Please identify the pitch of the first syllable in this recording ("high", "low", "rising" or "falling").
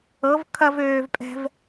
rising